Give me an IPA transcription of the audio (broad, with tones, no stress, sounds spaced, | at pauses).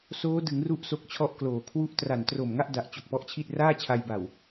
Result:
s oː˦˥ d ɯ˩˦ ŋ r u˥˩ ʔ s o˦˥ k̚ t͡ɕʰ ɔ˥˩ ʔ k l oː˨˩ kʰ w u˦˥ ʔ t r a˨˩ n t r o˨˩ m ŋ a˥˩ ʔ d a˨˩ ʔ t͡ɕ o˨˩ k̚ p ɔ˦˥ ʔ t͡ɕʰ i˥˩ t̚ r aː˥˩ t͡ɕʰ a˧ j b a˨˩ w